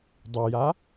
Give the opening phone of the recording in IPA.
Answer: dˤ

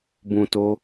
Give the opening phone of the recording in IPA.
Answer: b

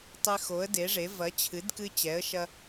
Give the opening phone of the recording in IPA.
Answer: tˤ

